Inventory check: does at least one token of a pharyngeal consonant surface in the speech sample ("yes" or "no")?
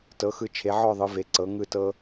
yes